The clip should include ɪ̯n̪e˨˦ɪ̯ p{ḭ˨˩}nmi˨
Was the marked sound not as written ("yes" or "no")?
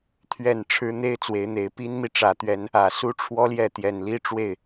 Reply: yes